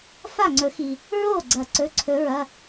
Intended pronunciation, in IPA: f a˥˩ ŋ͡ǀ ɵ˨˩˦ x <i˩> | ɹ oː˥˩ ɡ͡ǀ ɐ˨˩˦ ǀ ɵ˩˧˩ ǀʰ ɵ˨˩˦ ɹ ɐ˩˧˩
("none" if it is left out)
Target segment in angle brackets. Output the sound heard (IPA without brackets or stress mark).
i˩